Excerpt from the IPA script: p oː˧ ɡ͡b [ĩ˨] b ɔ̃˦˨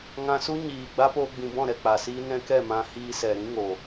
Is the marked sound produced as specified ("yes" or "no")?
yes